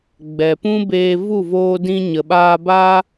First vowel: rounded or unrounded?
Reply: unrounded